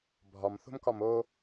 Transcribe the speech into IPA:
bʱ ɒ m θ o̤ m k ɒ m o

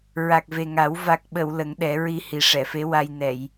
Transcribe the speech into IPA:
ɹ a˨˩ k̚ v e˨˩ ŋ a˨˩˦ w v a˨˩ k̚ ɓ ə˨˩˨ w l ə˨˩˦ ŋ ɗ ɛ˨˩˦ ɹ i˧ h i˨˩ ʂ ɛ˨˩˨ f e˧˥ w a˧ j n ɛ˨˩˨ j

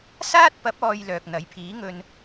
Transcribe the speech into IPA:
s aː˥ t̚ p ɐ˨˥ p̚ ɔː˨ j l œː˨ k̚ n̪ ɐ˨˥ j pʰ iː˨˥ ŋ ɵ˧ n

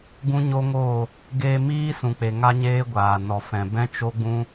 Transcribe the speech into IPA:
ɡ ũ˦ ɲ o˦ ŋ oː˦˨ | ɡ eː˧ m iː˦ s ũ˨ k͡p e˨ ŋ a˦ ɲ eː˦ ɡʷ aː˨ n ɔ˨ f ɛ̃˨ b ɛ̃˦ t͡ʃ o˦ ɡ͡b ũ˦

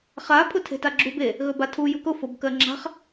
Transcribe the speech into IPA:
χ a pʰ ʊ tʰ e̤ t a ɡ͡ǁ u b e | ɣ ɵ b a tʰ u j ʊ k ʊ f o b k ɜ ŋ͡ǁ a̤ χ

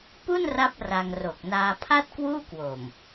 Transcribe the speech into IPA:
p u˥˩ n r a˦˥ p̚ r a˧ ŋ r o˨˩ k̚ n aː˧ pʰ a˥˩ t̚ k w uː˥˩ k w o˨˩ m

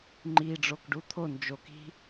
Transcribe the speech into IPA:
ŋ͡ǃ i ɖ͡ʐ o k ɖ u t̪ʰ o n d͡ʒ o k i̤

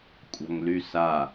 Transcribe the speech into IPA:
kʷʼ a̤ ŋ l y s a

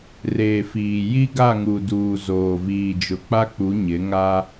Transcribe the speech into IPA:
r eː˨ f iː˨ j i˦ ɡ a˦˨ ŋ u˨ d uː˨ z oː˨ v iː˨ d͡ʒ ʊ˨ k͡p a˦ k͡p u˨˦ ɲ ɪ˨˦ ŋ a˦

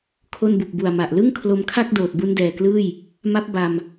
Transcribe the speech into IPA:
kʰ o˥˩ n b u˨˩ k̚ b u˨˩ a̯ m a˨˩ ʔ l ɯ˥˩ ŋ kʰ l o˧ m kʰ a˥˩ k̚ d oː˨˩ t̚ b u˦˥ n d ɛː˨˩ k l ɯː˥˩ j | m a˦˥ p̚ b a˧ m

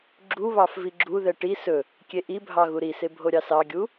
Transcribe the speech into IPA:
ɡ͡ǁ u β ɑ f v i ɡ͡ǁ u ð ɛ ʈ i s ɵ | kʲ e ʔ i bʱ ɑ ɣ u ɾ i s e bʱ o ɾʲ ɑ s ɑ ɡʲ u

